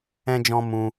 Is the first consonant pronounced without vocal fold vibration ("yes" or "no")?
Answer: no